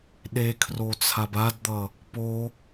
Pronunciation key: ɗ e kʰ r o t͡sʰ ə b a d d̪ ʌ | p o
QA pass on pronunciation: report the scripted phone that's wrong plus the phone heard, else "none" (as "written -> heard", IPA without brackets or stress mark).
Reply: ə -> a